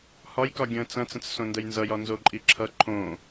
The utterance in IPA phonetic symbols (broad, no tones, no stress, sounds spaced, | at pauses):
h ɒ j k ɒ ɡʲ ə̃ː t͡s ɐ̃ t͡s ə̃ t͡s s õ n d ə j n z ʌ j ɒ n z o ǃʼ i ǁʰ ʌ ǃʰ õ